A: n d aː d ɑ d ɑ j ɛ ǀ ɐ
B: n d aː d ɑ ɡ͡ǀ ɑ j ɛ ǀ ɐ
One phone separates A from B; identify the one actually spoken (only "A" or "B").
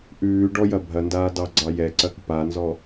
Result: B